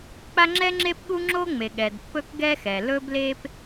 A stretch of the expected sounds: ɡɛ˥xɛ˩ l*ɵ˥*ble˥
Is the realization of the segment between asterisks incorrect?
no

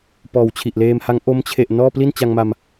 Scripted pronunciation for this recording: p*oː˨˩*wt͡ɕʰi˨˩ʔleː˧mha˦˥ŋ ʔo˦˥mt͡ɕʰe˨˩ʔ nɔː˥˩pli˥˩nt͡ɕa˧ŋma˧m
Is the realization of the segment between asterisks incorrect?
yes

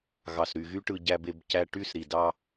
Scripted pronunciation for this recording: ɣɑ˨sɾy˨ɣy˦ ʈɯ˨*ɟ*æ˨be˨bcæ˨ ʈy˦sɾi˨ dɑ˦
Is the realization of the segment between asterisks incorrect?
no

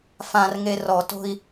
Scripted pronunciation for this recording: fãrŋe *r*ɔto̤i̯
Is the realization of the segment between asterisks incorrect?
no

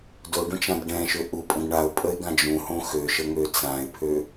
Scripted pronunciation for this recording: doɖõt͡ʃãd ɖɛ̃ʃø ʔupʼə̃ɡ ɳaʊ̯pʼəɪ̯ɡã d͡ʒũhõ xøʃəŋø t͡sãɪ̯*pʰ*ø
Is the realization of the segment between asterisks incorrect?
no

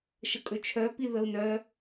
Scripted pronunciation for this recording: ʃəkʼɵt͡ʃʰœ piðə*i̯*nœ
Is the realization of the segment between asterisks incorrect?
yes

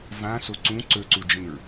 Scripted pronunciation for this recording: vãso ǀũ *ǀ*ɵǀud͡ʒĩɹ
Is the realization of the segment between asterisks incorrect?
no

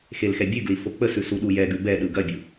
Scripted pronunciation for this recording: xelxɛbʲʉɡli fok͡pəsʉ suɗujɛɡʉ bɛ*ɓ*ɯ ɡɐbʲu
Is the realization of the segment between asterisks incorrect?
yes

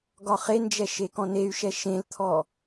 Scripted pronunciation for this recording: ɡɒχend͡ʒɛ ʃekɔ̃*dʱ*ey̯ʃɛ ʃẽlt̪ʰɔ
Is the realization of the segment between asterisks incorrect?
yes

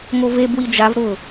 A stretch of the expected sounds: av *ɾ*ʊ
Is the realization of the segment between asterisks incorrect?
no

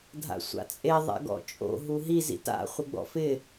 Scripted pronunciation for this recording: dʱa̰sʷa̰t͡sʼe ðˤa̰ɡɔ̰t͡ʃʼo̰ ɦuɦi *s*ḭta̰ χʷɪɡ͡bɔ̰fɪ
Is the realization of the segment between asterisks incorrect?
yes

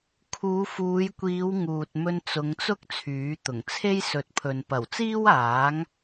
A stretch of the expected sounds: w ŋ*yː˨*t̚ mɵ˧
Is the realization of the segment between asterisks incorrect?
yes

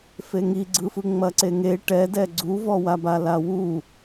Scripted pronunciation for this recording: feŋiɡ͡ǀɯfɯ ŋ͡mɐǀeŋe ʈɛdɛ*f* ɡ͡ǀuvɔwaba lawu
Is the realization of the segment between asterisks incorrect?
yes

